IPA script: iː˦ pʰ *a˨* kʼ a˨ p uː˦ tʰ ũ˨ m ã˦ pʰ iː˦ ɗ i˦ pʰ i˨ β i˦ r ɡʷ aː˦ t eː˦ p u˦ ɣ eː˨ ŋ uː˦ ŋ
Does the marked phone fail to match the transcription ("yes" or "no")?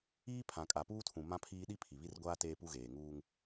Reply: yes